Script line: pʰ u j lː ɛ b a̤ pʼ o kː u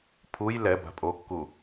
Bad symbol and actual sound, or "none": lː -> l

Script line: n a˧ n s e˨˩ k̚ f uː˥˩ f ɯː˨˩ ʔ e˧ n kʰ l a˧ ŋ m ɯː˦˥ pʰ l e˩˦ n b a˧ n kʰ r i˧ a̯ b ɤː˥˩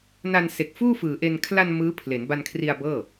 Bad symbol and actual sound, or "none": ŋ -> n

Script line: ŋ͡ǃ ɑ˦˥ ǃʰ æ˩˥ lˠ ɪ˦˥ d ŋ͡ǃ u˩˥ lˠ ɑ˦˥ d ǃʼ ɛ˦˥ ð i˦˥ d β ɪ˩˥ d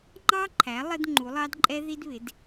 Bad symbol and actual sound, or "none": none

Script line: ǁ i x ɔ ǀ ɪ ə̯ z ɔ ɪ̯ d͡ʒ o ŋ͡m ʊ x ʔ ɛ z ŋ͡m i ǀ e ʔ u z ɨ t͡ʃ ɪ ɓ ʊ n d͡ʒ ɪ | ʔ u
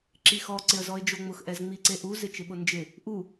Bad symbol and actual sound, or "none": ɨ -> ɪ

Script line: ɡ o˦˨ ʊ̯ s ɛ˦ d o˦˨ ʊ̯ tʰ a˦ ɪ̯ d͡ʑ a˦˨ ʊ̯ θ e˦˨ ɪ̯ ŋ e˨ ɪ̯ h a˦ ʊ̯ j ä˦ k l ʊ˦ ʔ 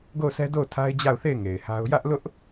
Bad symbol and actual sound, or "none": k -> ʔ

